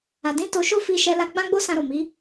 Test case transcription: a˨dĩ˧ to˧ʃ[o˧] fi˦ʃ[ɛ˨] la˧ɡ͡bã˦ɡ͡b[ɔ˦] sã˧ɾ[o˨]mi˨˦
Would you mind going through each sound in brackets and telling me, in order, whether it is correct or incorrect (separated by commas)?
incorrect, incorrect, incorrect, correct